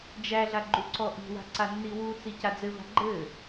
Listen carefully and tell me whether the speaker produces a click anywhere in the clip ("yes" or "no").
yes